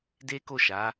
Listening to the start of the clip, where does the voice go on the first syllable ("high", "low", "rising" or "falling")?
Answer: high